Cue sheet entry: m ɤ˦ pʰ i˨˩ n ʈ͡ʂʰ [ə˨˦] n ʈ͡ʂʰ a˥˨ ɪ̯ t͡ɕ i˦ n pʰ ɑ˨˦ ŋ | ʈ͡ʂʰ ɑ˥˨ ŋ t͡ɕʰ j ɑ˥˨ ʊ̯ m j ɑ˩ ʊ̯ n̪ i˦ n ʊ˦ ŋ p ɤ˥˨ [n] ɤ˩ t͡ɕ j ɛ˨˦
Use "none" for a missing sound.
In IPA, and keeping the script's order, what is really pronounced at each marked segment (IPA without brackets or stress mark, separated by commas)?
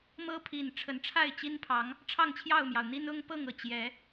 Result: ə˨˦, ŋ